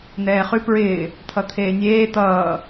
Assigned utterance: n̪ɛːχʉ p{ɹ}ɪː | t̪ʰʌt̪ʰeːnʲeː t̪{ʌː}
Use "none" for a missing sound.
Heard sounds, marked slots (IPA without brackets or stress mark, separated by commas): ɹ, ʌː